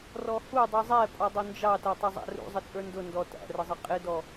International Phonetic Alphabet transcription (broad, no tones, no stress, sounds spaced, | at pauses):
r ɔ h u dˤ i zˤ ɛ pʼ ɔ dˤ ʊ n d͡ʒ ɑ t æ tˤ ə zˤ æ̰ r ṵ zˤ ɪ t͡sʼ ə˞ n d ʊ n d ɔ t æ̰ r ə zˤ ɪ qʼ ɪ d ɔ